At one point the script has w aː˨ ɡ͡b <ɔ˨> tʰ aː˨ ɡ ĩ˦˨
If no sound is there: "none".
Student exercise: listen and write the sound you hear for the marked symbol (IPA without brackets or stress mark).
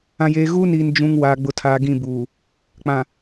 ʊ˨